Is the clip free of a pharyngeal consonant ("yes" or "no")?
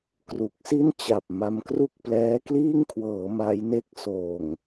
yes